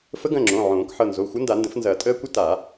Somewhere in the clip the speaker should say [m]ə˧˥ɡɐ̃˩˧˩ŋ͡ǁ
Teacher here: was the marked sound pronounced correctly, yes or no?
no